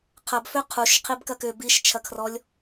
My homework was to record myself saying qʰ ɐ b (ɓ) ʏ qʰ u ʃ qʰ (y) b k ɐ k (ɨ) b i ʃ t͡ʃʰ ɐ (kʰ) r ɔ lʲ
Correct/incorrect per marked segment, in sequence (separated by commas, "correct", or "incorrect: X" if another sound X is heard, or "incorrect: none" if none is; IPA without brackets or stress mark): incorrect: f, incorrect: i, incorrect: ʏ, correct